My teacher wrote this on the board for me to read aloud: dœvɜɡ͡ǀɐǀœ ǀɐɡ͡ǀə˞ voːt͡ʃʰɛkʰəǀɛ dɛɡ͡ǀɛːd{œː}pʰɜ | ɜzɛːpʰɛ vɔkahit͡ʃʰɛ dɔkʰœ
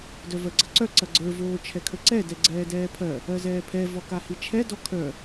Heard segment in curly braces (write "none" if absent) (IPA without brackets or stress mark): ɛː